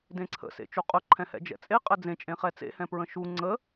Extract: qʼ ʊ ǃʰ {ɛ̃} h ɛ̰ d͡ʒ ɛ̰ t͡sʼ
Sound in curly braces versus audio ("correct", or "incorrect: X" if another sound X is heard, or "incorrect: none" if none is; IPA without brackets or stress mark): correct